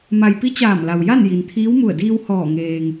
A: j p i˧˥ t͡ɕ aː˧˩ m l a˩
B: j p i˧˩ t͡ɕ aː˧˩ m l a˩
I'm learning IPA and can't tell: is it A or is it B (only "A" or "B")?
A